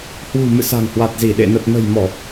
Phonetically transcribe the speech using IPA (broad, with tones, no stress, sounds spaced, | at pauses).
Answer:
h w ṳ˨˩ m ɨ̰˧˨ s a̤˨˩ ŋ h w a˨˩ t̚ z i˧˩ ɗ ḛ˧˨ n ə˨˩ t̚ n ə̤˨˩ j m ɔ˧˩˨